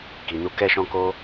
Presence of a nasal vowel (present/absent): present